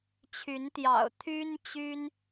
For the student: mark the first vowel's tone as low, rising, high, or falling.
rising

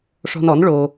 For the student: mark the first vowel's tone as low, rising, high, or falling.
high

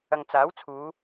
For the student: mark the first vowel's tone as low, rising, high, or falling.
low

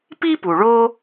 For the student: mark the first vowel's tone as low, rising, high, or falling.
high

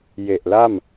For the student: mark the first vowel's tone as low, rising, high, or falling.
low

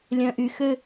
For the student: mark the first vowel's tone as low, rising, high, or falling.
low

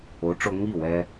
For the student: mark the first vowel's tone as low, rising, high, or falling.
rising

